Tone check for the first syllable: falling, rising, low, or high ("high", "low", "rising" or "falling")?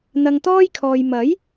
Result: low